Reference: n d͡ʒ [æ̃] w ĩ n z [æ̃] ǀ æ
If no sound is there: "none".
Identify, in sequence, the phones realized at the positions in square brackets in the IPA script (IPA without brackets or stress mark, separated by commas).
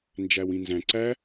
æ, æ̃